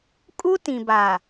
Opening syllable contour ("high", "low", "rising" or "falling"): high